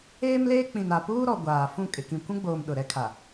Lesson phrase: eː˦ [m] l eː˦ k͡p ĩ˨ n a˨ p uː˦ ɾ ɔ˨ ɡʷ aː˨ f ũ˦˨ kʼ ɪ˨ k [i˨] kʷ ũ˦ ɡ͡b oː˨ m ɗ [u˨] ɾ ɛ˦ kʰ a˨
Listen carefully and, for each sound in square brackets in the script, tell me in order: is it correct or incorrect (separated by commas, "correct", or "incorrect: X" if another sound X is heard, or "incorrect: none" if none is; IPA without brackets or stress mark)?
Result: correct, incorrect: ĩ˨, incorrect: ʊ˨